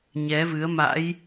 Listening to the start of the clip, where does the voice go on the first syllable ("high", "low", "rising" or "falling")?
rising